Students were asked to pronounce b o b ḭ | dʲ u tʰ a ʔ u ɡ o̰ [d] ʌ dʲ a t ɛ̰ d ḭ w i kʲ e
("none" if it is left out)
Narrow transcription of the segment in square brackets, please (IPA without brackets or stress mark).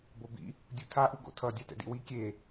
tʰ